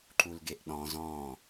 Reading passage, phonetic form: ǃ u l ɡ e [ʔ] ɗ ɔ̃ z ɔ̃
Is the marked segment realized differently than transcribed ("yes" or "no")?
no